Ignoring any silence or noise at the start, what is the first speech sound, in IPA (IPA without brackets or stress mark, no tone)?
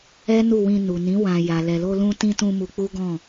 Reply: ɛ